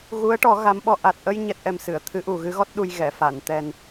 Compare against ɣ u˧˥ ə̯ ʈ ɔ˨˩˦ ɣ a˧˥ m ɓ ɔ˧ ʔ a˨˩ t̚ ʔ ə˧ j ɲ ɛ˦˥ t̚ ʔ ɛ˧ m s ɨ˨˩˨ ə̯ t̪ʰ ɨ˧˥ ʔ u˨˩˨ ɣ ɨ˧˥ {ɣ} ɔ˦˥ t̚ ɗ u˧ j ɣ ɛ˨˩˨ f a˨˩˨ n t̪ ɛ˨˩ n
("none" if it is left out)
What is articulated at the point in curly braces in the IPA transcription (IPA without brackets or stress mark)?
ɣ